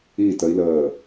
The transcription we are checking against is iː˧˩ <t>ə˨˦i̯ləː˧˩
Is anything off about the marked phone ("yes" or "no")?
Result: no